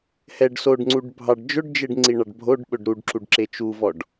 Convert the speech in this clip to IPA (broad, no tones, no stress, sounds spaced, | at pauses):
h ɛ ɖ s o ɖ ŋ͡ǀ u ɖ bʱ ɑ ɖ d͡ʒ ɵ ɖ d͡ʒ e ɖ ŋ͡ǀ i ɳ ɑ ɖ bʱ o ɖ ɓ ɵ ɖ ɾ u ɖ ǁ u ɖ ǁ e t͡ʃ u v ɔ ɖ